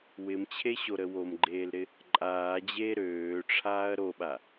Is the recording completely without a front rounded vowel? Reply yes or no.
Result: no